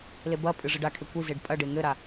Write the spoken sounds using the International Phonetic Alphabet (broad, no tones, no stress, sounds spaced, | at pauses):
l e b ɐ pʼ ɨ ʐ ɘ ɖ a kʰ e kʷ i z e ɖ pʼ ɐ ɖ e ŋ ɘ ɾ a